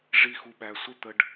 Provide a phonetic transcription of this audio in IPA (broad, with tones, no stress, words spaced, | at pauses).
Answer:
ʐi˧xu˨ɓæ˨ sʷə˦t̪ə˧ɖ